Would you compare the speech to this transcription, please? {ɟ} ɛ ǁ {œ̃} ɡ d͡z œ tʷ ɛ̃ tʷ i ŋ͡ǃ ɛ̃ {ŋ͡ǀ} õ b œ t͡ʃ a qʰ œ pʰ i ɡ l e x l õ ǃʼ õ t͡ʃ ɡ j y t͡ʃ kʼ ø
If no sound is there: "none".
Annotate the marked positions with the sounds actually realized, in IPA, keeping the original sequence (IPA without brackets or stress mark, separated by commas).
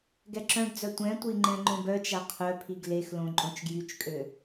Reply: ɡ, œ̃, ŋ͡ǃ